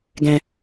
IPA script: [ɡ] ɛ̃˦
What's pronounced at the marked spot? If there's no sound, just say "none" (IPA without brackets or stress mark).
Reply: ɡ